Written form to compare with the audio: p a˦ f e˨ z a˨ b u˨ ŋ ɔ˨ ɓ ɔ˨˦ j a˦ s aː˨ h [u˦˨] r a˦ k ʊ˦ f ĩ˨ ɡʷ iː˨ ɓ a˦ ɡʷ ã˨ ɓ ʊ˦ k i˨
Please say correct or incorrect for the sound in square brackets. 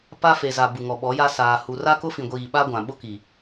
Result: incorrect